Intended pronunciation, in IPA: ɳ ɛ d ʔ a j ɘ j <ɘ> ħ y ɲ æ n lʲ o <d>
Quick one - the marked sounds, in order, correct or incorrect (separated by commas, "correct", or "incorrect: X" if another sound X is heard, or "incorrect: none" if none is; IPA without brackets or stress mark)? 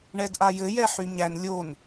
incorrect: ɛ, incorrect: n